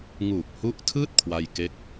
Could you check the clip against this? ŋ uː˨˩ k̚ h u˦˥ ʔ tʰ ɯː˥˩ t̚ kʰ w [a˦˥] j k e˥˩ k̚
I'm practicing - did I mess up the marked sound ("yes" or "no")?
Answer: yes